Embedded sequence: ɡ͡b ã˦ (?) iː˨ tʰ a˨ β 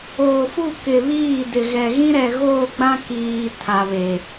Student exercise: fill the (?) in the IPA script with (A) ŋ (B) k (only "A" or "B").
B